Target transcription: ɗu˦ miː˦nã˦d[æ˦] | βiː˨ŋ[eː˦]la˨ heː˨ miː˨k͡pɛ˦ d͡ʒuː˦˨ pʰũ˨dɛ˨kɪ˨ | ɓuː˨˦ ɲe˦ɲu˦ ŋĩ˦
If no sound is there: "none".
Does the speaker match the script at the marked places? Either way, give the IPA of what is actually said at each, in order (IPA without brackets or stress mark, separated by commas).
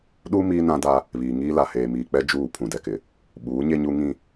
a˦, iː˦